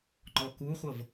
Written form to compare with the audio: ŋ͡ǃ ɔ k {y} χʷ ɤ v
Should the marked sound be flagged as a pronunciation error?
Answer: yes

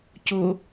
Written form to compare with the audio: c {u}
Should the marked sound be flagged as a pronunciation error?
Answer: yes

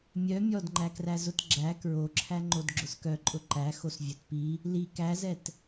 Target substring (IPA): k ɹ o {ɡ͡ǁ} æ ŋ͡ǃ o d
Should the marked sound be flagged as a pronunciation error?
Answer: yes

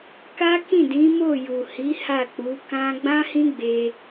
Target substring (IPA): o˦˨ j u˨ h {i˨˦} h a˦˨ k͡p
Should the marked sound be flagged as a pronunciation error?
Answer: no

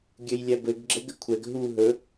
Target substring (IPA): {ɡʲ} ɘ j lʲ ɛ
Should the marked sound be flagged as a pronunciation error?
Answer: no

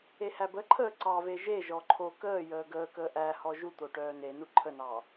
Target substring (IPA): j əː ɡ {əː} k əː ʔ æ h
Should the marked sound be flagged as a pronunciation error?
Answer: no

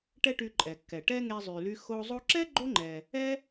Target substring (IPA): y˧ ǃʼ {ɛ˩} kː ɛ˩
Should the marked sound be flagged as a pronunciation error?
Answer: no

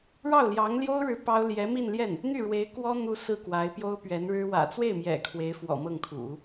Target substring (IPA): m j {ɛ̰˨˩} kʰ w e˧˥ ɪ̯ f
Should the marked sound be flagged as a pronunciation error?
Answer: no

